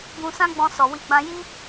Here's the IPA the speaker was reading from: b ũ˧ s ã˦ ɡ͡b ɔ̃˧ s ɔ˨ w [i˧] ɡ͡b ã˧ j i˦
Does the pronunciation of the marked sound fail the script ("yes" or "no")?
no